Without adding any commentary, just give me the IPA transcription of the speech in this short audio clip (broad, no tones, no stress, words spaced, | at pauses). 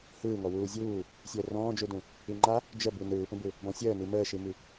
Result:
hɯːŋɔ wuːzʲuː | sʲəːrɔ̃ːd͡ʒudũ | iŋ͡ǃa | d͡ʒəbi nɯːpə̃bɯ | bɔ̃sʲəːni məːʃimi